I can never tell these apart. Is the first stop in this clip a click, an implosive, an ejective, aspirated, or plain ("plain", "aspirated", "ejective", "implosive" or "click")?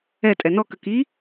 ejective